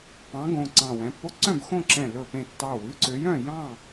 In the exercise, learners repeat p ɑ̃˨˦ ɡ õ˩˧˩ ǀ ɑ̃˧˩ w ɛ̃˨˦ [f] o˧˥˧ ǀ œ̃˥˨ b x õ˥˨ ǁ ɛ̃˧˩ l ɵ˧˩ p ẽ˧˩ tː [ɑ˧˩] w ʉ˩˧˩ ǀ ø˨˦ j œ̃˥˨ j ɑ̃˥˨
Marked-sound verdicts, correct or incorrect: incorrect, correct

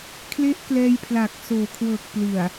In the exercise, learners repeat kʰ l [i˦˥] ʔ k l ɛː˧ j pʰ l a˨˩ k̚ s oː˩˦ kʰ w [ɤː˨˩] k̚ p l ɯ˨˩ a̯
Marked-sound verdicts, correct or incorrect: incorrect, correct

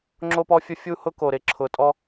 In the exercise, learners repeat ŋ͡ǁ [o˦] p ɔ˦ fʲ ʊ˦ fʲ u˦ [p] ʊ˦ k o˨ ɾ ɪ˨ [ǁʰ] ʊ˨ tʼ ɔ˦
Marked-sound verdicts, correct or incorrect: correct, incorrect, correct

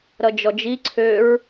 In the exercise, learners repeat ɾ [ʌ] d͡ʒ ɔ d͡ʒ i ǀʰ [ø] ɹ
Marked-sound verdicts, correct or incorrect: correct, correct

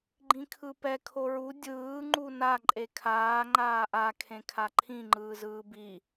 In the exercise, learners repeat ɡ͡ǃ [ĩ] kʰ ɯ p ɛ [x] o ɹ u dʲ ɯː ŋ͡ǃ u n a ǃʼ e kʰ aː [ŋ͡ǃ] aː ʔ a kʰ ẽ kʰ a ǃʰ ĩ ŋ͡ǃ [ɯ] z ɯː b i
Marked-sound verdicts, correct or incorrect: correct, incorrect, correct, incorrect

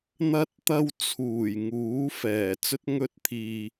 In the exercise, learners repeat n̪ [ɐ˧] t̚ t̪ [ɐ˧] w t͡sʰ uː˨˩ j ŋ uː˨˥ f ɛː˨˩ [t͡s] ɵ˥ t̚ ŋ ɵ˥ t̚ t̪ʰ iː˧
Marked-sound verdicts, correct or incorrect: correct, correct, correct

